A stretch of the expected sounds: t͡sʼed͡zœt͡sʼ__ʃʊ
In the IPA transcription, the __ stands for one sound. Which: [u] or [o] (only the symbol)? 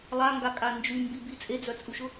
u